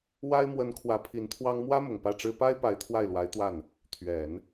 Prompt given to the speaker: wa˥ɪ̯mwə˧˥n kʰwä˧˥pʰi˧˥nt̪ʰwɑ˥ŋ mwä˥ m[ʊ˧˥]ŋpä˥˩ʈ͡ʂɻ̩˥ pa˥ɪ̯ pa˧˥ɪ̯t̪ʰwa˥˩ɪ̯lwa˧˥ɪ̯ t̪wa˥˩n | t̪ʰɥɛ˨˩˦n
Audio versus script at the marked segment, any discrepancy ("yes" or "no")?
yes